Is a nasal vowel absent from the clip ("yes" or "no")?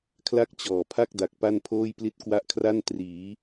yes